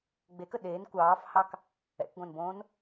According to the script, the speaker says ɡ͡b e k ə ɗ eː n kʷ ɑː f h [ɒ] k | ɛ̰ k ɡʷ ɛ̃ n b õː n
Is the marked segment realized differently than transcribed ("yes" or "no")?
yes